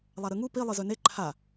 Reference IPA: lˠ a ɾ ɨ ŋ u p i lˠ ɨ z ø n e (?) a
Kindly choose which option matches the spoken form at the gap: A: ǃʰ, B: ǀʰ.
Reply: A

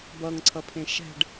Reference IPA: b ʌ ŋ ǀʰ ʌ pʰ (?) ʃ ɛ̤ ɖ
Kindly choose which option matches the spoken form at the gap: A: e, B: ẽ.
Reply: B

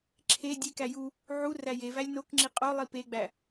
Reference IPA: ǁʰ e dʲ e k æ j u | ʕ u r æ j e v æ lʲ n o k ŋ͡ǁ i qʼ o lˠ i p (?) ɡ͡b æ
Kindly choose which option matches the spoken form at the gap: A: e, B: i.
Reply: A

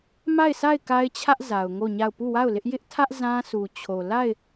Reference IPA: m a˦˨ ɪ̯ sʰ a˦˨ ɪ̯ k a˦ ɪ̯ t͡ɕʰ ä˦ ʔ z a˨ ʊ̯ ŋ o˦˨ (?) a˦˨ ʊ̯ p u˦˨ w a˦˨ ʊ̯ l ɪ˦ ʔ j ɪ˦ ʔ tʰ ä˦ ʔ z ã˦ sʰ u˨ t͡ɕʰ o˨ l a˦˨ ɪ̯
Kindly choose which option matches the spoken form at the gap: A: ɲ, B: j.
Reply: A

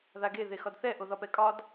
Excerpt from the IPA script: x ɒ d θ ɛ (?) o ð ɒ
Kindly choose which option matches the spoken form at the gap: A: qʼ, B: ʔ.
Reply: B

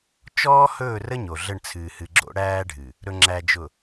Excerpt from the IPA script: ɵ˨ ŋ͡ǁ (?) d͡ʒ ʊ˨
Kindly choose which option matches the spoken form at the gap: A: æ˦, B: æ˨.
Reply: B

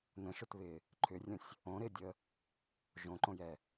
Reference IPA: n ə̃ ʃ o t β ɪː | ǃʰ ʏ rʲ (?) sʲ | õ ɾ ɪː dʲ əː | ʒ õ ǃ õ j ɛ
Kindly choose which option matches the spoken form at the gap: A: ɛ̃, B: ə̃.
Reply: B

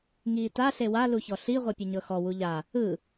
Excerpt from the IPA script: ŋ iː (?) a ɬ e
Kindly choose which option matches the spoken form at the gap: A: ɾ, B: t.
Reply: B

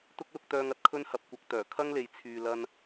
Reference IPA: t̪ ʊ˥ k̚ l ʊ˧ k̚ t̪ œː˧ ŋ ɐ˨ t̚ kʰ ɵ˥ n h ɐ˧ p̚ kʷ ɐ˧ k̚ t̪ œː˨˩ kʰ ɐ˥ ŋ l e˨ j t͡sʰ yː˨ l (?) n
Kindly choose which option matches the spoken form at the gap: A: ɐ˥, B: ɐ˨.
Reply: A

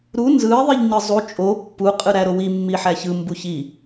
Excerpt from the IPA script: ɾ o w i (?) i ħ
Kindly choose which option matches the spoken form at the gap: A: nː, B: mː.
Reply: B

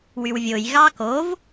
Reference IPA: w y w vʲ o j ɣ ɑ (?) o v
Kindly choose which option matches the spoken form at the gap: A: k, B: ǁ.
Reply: A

